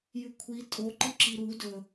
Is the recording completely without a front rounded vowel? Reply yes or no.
yes